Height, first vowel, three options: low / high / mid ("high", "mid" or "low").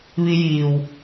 high